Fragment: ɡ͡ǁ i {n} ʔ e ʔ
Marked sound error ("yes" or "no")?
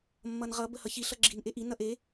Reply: no